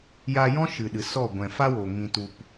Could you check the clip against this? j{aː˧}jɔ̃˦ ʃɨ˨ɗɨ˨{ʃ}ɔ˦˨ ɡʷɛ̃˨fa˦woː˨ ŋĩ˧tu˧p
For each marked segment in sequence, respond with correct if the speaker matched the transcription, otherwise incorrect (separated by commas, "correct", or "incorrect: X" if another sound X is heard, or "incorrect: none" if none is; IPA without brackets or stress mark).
incorrect: a˧, incorrect: s